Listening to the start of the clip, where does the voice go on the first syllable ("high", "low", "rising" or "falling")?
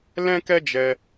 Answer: high